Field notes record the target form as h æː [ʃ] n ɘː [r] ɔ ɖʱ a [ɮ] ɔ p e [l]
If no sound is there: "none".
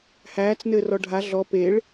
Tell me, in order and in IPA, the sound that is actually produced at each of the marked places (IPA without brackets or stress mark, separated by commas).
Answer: t͡s, r, ɮ, ɭ